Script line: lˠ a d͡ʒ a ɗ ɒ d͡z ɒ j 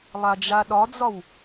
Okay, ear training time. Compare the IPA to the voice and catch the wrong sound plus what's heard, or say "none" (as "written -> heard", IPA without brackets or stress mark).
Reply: j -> w